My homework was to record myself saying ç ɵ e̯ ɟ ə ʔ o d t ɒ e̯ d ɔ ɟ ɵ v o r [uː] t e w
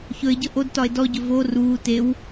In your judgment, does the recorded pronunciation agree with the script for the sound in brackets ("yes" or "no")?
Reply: yes